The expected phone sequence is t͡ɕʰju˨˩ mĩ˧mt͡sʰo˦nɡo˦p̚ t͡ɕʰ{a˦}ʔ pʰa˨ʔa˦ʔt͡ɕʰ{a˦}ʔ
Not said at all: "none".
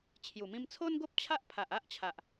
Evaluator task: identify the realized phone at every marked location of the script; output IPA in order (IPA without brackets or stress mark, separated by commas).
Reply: a˦, a˨